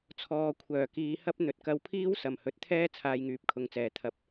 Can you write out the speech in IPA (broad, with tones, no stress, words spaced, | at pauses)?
t͡sʰɔː˨ kʷʰœː˨˩kiː˨˧hɐ˥p̚ n̪ɵ˨t̚kɐ˧wpʰiː˥w sɐ˨˩mhɵ˨˥t̚t̪ʰɛː˥ t͡sʰaː˧jŋyː˨˥p̚kʰʊ˨˧ŋt͡sɛː˨˩ t̪ʰɐ˨˥p̚